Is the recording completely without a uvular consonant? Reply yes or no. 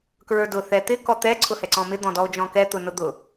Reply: yes